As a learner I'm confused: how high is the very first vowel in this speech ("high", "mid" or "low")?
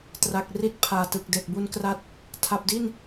low